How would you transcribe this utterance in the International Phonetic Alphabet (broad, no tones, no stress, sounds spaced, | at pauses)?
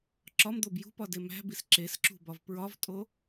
ǁ ɒ m d̪ o b j ṳ p ɒ d e m æ̤ b i s ǁ e s ǁ ṳ b ɒ v p ɹ ɒ v tʼ o